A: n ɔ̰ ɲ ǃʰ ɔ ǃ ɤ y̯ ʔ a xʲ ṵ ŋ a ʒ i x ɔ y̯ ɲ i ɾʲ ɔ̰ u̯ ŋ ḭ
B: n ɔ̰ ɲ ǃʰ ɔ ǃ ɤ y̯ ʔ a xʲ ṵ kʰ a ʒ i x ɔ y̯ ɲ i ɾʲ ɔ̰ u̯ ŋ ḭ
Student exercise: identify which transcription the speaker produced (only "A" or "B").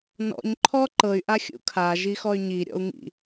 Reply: B